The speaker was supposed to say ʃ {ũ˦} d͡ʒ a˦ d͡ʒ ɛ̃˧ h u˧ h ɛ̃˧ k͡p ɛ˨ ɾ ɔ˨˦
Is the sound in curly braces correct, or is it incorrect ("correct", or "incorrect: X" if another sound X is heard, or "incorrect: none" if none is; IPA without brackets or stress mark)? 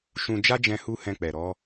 incorrect: ũ˧